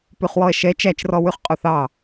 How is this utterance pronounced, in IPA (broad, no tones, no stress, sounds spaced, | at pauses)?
p ʉ χ w ɔ ɐ̯ ʃ ɛ t͡ʃ æ t͡ʃ r ɔ w ʉ χ qʼ o θ ɑ